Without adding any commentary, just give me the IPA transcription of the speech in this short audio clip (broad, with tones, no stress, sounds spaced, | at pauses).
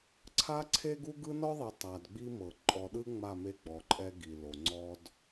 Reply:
ǀʰ a˦ ǀʰ e˦ ɡ u˦ ɡ ɯ˦ n ɔ˦ ðˤ i˨ tˤ a˨ d ɡ͡b i˦ m ɤ˨ ǃʼ ɔ˨ ɗ ɯ˦ ŋ͡m a˦˨ m e˦ ɡ͡b ɔ˨ ǃʼ ɛ˦ ɡ i˨ l o˨ ŋ͡ǀ ɔ˦ d